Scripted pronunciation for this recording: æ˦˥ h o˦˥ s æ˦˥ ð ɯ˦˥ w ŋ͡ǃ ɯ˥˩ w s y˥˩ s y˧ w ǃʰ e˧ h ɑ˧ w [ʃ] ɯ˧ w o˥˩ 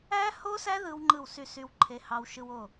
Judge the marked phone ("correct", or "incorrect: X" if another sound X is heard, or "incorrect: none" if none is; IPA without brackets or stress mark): correct